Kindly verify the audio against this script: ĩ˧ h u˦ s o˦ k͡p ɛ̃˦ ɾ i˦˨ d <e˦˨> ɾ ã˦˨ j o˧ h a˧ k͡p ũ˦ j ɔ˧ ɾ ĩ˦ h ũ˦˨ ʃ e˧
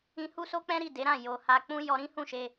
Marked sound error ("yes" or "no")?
yes